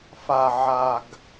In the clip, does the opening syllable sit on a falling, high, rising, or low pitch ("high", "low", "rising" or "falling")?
low